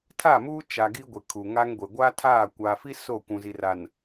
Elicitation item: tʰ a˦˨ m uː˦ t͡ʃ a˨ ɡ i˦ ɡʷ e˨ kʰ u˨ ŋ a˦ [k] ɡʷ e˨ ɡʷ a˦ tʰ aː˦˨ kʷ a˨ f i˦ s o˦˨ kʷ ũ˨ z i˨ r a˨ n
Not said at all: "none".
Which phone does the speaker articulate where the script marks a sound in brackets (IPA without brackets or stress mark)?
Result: ŋ